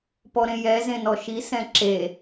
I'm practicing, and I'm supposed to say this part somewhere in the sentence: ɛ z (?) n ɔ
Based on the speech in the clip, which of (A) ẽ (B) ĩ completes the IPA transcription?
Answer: A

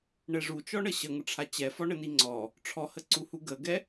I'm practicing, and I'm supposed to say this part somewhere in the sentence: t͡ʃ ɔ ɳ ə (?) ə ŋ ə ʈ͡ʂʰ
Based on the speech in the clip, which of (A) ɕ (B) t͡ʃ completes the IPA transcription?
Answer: A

